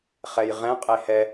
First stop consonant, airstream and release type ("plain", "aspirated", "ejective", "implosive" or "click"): ejective